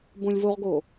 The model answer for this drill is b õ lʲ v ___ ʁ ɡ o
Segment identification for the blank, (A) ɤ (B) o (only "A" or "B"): B